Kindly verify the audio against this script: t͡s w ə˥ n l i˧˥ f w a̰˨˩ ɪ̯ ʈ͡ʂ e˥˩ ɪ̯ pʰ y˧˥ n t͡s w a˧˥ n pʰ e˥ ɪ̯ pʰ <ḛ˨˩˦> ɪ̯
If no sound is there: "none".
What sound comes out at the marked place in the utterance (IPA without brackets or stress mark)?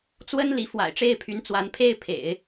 ḛ˨˩˦